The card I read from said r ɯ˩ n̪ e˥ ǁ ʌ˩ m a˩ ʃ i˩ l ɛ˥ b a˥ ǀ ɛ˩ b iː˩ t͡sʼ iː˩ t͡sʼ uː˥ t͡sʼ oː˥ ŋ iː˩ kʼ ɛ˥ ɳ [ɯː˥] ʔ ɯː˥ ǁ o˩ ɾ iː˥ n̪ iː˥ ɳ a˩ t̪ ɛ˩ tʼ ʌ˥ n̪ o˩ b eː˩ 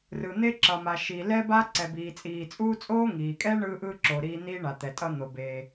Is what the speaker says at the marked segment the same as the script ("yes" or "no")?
yes